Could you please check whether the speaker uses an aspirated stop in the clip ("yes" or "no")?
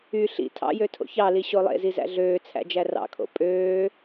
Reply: yes